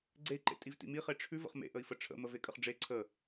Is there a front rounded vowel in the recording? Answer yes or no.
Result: no